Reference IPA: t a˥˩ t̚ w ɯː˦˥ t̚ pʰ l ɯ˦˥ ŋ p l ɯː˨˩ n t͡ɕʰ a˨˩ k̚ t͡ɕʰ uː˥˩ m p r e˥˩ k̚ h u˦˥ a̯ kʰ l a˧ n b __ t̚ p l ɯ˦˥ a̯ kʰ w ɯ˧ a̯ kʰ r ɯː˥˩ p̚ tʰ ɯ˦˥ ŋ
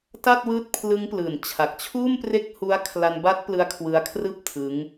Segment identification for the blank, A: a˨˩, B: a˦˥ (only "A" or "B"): B